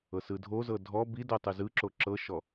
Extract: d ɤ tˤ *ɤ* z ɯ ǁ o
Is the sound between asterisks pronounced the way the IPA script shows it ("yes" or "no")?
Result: no